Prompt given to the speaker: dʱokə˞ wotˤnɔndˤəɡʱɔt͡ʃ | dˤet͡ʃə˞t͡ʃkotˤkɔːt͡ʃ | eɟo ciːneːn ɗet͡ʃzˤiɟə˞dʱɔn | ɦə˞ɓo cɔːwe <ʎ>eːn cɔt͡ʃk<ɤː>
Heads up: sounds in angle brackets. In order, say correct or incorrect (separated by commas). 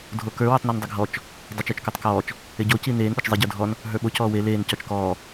incorrect, incorrect